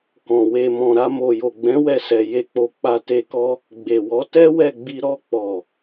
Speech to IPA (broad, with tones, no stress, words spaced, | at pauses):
kɔ̃˨ we˨mɔ̃˨ ɾa˧ mo˨jo˨ɡ͡bɛ̃˨˦ wɛ˧sɛ˨ je˧k͡po˧ k͡pa˧te˧kɔ˦ | ɡ͡be˨wɔ˨˦ tɛ˦wɛ˦˨ɡ͡bi˧ ɾɔ˧k͡pɔ˨